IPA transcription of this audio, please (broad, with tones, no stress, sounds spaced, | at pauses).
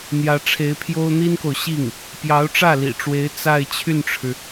n̪ j ä˧˥ ʈ͡ʂʰ e˧˥ ɪ̯ pʰ j o˥ ʊ̯ n̪ i˥ n k o˨ ʊ̯ ɕ i˥˩ ŋ | p j ɑ˧˥ ʊ̯ ʈ͡ʂ ä˥˩ l ḭ˨˩ ʈ͡ʂ w e˧˥ ɪ̯ t͡s a˥˧ ɪ̯ t͡ɕʰ y˥˩ n ʈ͡ʂʰ ɻ̩˩